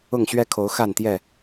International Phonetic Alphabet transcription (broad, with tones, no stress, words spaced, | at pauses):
ʊ˥˨ŋɕɥɛ˦kʰo˨˦ʊ̯ xa˥˨nt̪jɛ˥˨